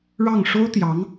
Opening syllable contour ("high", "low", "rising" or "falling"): falling